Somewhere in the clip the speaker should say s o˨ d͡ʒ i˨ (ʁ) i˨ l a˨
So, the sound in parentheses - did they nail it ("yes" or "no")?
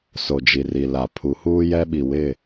no